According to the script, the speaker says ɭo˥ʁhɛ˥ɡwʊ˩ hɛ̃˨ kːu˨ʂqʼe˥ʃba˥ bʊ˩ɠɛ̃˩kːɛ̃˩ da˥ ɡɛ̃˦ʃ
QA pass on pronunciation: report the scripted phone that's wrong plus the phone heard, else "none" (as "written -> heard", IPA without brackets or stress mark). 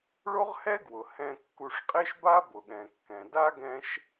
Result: none